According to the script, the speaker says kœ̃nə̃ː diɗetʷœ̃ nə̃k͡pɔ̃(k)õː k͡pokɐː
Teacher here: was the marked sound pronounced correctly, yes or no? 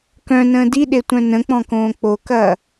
yes